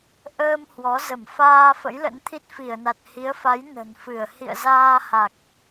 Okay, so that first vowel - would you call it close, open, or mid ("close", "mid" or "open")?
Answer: mid